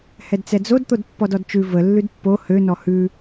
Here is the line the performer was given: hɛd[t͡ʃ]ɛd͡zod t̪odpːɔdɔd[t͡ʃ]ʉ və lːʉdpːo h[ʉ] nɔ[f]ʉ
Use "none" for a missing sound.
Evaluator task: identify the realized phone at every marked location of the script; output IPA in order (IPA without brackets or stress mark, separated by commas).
t͡s, t͡ʃ, ø, h